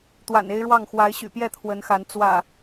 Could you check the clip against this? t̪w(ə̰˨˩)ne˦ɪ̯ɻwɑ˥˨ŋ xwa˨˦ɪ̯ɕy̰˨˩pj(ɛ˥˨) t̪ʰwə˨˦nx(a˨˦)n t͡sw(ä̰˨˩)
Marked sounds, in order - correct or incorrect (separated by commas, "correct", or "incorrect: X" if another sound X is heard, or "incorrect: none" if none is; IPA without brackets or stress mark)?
incorrect: a̰˨˩, correct, correct, correct